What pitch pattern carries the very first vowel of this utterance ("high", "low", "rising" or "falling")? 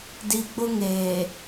low